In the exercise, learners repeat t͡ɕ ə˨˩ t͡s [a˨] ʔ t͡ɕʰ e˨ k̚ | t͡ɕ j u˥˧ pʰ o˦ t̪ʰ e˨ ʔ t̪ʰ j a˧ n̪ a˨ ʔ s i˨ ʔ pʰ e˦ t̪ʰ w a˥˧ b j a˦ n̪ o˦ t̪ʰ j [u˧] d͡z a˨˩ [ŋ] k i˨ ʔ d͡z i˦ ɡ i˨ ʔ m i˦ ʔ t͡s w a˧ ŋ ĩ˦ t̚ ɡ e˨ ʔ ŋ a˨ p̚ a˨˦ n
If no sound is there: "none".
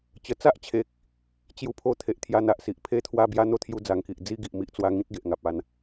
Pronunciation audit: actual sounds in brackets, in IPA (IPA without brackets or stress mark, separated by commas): a˦, u˧, ŋ